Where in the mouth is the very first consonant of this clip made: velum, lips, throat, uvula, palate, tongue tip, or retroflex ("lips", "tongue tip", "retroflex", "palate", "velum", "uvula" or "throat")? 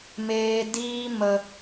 lips